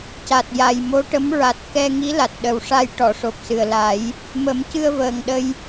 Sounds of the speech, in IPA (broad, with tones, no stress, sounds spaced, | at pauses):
c a˨˩ t̚ j a˨˩ j m o˧˥ ʈ ə˧˥ m ɹ a˨˩ t̚ k ɛ˧ ŋ i˧˥ l a˨˩ t̚ ɗ ə˨˩ w ʂ a˧ j ʈ ɔ˨˩˨ ʂ o˨˩ p̚ s ɨ˨˩ ə̯ l a˨˩˦ j | m ə˨˩˦ m c ɨ˧ ə̯ v əː˨˩ ŋ ɗ ə˧ j